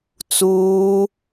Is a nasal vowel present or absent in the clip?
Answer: absent